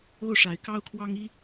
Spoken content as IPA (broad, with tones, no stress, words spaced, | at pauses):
o˥˩ʊ̯ʂa˨˩ɪ̯kɑ˥ʊ̯kʰwɑ˥ŋ i˥